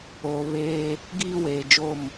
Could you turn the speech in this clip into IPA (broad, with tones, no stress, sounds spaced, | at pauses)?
oː˨ β eː˦ | ɡ iː˦ w eː˨ d͡ʒ o˦˨ m